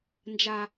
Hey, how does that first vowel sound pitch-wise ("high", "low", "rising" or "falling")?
low